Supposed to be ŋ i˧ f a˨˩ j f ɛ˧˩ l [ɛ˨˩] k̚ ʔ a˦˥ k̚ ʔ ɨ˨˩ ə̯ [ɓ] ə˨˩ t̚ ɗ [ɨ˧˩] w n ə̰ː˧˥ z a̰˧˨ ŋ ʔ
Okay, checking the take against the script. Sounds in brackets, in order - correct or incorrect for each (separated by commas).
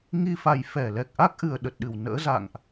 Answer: correct, incorrect, correct